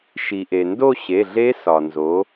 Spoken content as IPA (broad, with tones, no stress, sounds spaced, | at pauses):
ʃ i˩ ʔ e˩ n d o˦˨ ɕ e˩˧˩ ɮ e˧˥ s ɒ˩ n z o˩˧